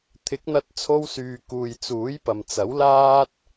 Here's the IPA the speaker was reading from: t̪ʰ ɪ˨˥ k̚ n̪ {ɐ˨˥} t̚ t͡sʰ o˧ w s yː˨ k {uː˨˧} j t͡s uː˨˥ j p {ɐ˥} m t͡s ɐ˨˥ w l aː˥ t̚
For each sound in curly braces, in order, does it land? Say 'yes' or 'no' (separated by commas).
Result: no, no, no